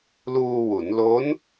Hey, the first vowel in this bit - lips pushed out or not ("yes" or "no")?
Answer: yes